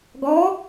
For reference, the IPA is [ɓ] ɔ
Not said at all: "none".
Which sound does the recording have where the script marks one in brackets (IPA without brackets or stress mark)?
ɡ